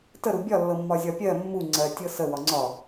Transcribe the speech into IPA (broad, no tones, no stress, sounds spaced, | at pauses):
t ə ɾ u bʲ ɒ lː ɤ mː ɒ zʲ ɒ pʲ ɜ mː u ŋ͡ǀ ɜ tʲ ɤ s ə w ɒ ŋ͡ǀ ɒ